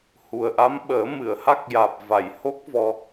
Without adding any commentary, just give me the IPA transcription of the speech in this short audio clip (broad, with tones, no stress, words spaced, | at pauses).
hu˨˩ə̯ʔa˧˥m ɓəː˨˩˦ mɨ˨˩˨ə̯ha˦˥k̚jaː˨˩p̚ va˨˩˨jho˦˥k̚ vɔ˧